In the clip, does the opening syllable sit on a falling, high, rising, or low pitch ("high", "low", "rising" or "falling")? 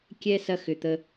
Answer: high